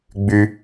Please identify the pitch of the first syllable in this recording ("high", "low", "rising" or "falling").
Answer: low